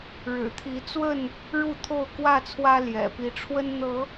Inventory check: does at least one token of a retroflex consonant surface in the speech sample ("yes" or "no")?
yes